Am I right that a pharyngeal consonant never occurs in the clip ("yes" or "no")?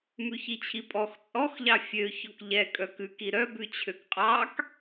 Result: yes